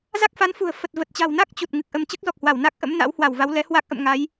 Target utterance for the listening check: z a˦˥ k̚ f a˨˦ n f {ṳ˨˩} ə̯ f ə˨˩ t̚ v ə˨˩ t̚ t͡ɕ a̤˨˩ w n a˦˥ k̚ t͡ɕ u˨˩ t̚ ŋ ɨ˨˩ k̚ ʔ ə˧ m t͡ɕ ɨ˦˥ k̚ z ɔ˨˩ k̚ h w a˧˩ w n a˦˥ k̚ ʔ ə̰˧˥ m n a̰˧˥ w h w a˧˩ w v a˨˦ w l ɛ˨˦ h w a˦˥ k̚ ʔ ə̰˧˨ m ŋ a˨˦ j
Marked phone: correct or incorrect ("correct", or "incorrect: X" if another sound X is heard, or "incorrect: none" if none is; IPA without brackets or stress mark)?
correct